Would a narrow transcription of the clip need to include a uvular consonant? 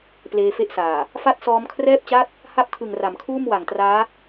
no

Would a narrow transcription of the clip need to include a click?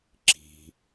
yes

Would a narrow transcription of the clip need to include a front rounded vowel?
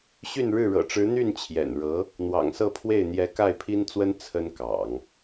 yes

